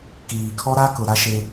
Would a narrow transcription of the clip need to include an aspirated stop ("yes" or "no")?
yes